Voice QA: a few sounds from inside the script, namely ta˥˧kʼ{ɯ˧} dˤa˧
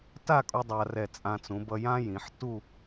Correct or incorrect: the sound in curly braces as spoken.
incorrect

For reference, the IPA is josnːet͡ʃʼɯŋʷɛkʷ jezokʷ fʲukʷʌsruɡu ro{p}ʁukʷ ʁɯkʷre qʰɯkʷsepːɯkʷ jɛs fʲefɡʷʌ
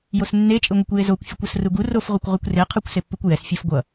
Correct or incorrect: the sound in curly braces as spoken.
incorrect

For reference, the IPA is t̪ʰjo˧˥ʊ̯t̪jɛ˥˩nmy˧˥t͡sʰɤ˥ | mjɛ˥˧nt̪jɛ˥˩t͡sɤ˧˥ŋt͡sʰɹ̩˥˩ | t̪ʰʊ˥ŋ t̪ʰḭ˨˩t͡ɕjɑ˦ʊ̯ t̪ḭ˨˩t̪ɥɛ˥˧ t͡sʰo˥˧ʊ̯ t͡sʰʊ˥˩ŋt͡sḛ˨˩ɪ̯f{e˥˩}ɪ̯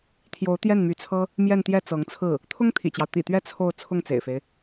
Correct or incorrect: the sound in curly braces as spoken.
incorrect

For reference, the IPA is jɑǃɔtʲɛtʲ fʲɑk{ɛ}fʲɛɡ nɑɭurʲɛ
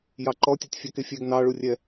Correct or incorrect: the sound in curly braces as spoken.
incorrect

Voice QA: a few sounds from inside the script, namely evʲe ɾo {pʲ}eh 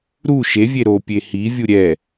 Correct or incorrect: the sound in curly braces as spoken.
correct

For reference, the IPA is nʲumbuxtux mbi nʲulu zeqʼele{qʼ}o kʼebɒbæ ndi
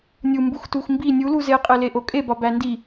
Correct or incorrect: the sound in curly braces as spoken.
incorrect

